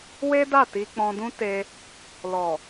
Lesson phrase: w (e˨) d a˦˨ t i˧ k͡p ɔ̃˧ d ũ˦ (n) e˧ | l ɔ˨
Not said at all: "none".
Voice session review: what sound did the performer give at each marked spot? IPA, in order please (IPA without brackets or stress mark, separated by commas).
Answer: e˦, t